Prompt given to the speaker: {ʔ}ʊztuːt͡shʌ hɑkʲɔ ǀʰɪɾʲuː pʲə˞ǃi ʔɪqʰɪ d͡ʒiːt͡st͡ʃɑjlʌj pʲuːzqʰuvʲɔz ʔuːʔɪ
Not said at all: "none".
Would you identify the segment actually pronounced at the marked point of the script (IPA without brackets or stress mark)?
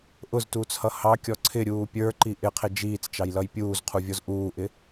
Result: ʔ